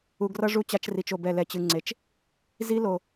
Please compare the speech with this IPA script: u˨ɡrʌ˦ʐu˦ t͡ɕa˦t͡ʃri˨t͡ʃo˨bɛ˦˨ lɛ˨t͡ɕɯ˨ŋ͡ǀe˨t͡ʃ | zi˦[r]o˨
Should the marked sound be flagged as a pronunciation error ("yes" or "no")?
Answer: yes